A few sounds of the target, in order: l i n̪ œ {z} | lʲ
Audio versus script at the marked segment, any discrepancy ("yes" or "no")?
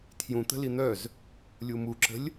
no